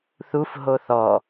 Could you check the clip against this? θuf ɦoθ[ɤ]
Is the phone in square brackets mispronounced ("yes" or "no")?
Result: yes